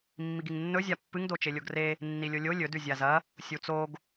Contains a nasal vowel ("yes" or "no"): no